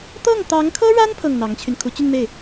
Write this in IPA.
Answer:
t̪ ɤ˥˩ ŋ t̪ ɑ˧˥ ŋ kʰ ɤ˥ ɻ a˥ n pʰ ɤ˥˩ ŋ n̪ ɑ˧˥ ŋ t͡ɕʰ y˧ n kʰ u˧˥ t͡ɕ y˥˧ n m e˥˩ ɪ̯

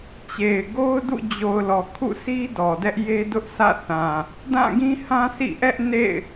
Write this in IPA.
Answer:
t͡ɕ e˨ ɪ̯ ɡ o˦ ʊ̯ d ṵ˦˨ d͡ʑ o˨ ʊ̯ l ɔ˨ kʰ ṵ˦˨ sʰ i˦ d ɔ˨ d ɛ˦ ʔ j e˦ d ʊ˦ ʔ s ä̰˦˨ θ ã˨ | d ã˦˨ ɡ ĩ˦ h ã˦ sʰ ḭ˦˨ ʔ ɛ˦ ʔ n ḛ˦˨ ɪ̯

